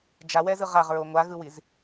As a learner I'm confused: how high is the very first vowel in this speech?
low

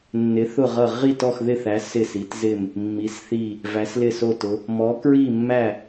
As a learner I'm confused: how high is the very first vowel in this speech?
high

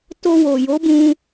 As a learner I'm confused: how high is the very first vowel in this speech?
mid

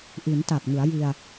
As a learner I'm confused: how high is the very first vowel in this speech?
high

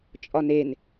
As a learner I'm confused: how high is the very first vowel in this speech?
low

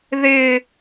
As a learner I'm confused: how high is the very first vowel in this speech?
high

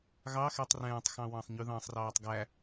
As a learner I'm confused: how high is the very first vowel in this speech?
low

